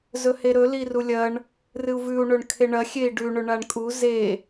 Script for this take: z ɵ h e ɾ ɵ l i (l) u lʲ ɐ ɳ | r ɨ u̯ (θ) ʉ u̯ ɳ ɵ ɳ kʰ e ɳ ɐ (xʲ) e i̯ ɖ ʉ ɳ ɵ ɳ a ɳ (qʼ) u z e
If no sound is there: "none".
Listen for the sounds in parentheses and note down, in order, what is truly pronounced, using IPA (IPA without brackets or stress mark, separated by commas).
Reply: r, v, xʲ, kʼ